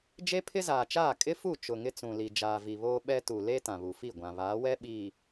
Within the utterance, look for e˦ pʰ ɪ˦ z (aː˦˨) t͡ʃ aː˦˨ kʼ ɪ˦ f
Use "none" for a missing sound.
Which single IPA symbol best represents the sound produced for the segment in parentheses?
aː˨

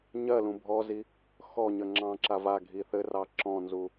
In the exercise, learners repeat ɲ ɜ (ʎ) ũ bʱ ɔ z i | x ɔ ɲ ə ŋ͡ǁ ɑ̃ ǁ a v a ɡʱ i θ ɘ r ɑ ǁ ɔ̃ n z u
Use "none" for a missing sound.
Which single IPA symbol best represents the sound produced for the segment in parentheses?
l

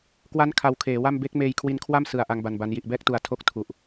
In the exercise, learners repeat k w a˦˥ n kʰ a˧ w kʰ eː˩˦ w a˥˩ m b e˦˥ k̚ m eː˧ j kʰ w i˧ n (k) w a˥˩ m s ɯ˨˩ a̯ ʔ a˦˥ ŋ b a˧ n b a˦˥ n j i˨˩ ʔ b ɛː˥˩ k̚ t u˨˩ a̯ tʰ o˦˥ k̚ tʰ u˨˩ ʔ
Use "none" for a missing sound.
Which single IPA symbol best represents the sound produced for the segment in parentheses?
kʰ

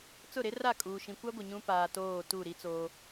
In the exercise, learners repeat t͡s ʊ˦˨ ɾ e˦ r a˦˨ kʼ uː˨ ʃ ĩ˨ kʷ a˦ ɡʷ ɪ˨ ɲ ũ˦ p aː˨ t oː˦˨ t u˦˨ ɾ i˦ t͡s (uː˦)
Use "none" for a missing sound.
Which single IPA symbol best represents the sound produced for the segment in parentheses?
oː˦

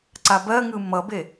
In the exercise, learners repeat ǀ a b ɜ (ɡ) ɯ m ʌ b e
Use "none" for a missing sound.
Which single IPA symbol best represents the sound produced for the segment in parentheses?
ŋ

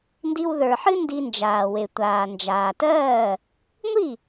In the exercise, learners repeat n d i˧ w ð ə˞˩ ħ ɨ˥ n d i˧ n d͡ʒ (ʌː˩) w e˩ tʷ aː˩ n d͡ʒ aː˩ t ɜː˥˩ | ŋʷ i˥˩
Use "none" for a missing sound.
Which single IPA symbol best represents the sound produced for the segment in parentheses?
aː˩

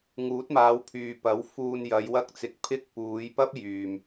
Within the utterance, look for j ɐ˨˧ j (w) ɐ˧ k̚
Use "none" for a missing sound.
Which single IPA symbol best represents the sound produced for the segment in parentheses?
w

